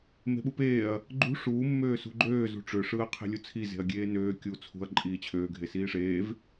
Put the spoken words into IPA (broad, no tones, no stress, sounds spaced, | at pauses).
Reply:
m e̤ ɓ u p eː ɐ̯ | ɡ͡ǃ ṳ ʂ uː mː øː s ṳ ɡ͡ǃ øː z ṳ ʈ͡ʂ ø ʂ ɯː ɐ̯ qʰ e̤ lʲ u t͡sʰ i z e̤ ɐ̯ ɡʲ eː n øː kʲ uː t͡sʰ ṳ ɐ̯ ǃʼ iː t͡ɕʰ øː ɡʱ e s iː ʂ eː v